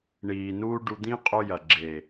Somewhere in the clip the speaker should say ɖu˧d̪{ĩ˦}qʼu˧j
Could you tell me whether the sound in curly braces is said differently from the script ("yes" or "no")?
no